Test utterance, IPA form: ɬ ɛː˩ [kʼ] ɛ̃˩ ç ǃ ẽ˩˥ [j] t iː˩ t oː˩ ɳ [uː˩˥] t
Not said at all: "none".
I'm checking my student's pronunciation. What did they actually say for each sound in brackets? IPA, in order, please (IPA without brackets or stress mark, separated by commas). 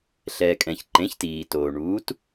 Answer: kʼ, ç, uː˩˥